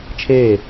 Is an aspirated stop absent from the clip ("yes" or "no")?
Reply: no